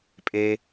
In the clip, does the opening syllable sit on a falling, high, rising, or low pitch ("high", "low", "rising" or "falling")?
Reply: high